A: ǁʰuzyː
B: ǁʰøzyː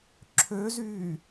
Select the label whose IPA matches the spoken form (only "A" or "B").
B